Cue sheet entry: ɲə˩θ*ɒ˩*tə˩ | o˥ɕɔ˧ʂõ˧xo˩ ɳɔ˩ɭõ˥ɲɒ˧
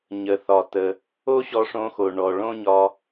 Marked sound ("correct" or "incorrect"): correct